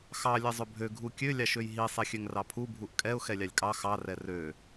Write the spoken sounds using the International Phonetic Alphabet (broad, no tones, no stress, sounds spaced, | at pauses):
x ɑ lʲ ɛ zˤ ɵ bʱ ø ɡʱ u kʲ ø lʲ ɑ ʃ ø j ɦ i sˤ ɛ xʲ ø ŋ r ɑ pʰ u bʱ u ʔ kʼ ɛ ʊ̯ x ɛ lʲ ɑ lʲ kʼ ɑ x ɑ r ɛ r ø